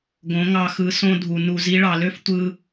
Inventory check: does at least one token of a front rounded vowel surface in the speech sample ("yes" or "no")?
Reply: yes